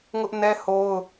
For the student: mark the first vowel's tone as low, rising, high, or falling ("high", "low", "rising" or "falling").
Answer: high